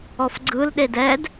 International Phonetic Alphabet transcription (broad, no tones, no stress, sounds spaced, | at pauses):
ɔ f ɡ͡ǀ ɯ l ɗ e d ɛ d